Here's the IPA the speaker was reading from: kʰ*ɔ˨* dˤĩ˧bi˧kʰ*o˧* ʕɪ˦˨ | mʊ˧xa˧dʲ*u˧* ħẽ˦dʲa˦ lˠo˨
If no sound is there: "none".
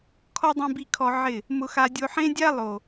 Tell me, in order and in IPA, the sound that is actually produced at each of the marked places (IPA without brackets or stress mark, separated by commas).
ɔ˦, ɔ˧, o˧